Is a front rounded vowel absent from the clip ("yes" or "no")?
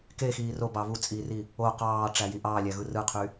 no